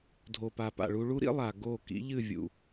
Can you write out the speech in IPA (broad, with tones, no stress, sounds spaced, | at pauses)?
dʱ o˨ p a˨ p a̰˨ ɭ u˧ ɭ u˦ ɾ ḭ˦ lˠ a˨ ɡ o˦˨ k ḭ˨˦ ʎ ɨ˦˨ vʲ ṵ˨